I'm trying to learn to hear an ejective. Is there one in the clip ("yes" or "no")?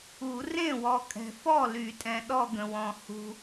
yes